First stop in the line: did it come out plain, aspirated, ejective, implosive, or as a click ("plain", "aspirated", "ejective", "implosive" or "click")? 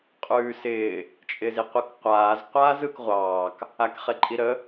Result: ejective